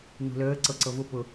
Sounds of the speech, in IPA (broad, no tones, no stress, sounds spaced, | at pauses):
n ṳ l əː ǀ ɤ ǀ ɤ v ʊ p ʊ